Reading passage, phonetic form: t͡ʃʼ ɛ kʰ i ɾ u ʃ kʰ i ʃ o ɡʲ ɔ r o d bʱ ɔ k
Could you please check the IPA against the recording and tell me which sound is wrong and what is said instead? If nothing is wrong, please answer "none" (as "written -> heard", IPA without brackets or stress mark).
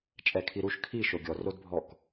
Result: none